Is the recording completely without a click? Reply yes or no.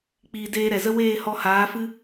yes